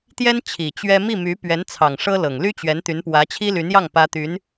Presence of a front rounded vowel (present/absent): present